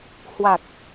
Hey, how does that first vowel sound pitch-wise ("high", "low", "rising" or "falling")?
low